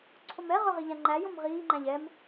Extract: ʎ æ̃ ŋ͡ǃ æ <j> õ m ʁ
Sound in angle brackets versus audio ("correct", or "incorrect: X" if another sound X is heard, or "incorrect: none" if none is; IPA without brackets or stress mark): correct